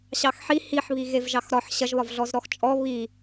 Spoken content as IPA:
ɕ ɑ x ħ i h i ħ β i ɣ e v ʒ ɑ x ɾ ɒ ħ ɕ ɐ ʒ β ɒ v ɮ ɔ z ɾ ɔ x t͡ʃʼ ɔ β i

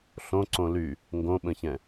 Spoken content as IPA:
ɬ õ ǀ õ l y | ŋ ɡ õ ɓ ə̃ ç ɛ̃

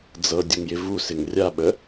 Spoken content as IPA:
d͡z ɤ dʲ ə ŋ j ɪ v u s ɪ ŋ rʲ a ɓ ə

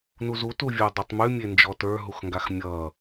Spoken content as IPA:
n u z u t u vʲ uː dˤ e tˤ m ʉ mʲ e n d͡ʒ ɔ t ə˞ ɦ u x ŋ ɡ a x mʲ ʌː

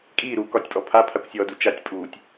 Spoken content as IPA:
kʼ iː ɾ uː k ɒ tʲ pʼ ɔ pʰ a pʰ a kʷ sʲ ɔː d u t͡ʃ a tʲ pʼ uː tʲ

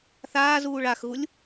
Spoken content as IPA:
θ aː z uː ɭ a x ɣ u lʲ

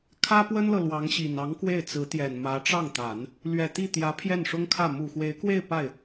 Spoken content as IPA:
kʰ ä˥ p w ə˥ n l ɤ˨ l w ɑ˧˥ ŋ ɕ i˨˩ n ɑ˧˥ ŋ k w e˥˩ ɪ̯ t͡s ɹ̩˧˥ t̪ j ɛ˨˩ n m ä˧˥ ʈ͡ʂ ɑ˥˩ ŋ t̪ a˨˩˦ n | l ɥ ɛ˨˩ t̪ i˥˩ t̪ j ä˧˥ pʰ j ɛ˥˩ n ʂ ʊ˥ ŋ kʰ ä˥˩ m u˨˩ x w e˧˥ ɪ̯ k w e˥˧ ɪ̯ p a˥˩ ɪ̯

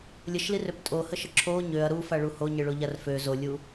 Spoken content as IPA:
lʲ ə ʃ l i r ø p tʼ o h ə ʃ ə ǁʰ o ɲ ø ɐ̯ ɾ u f a ɭ u h o ɲ ə ɭ o ʎ a r f ø z o lʲ u

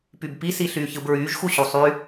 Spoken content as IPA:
p y b p i s i ɬ yː ç ɯ b ɹ yː ʒ x u ɕ u sˤ y

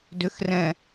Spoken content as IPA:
d ʏ x r ɛ̃

